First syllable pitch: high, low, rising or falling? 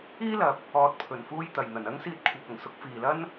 high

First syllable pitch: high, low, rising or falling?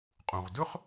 low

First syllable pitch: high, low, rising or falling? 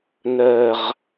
low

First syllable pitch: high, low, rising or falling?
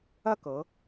falling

